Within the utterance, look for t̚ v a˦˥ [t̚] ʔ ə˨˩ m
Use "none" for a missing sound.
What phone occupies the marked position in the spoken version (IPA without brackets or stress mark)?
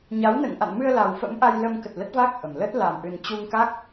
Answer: k̚